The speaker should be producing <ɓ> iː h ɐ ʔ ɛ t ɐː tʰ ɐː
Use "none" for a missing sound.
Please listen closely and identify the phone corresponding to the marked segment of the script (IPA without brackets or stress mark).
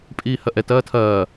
pʼ